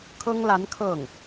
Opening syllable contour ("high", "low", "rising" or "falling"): high